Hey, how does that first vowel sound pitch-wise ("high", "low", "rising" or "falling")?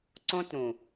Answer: high